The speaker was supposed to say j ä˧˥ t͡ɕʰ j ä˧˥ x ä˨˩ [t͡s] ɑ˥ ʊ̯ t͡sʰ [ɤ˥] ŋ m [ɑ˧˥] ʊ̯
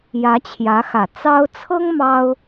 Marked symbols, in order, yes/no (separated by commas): yes, yes, no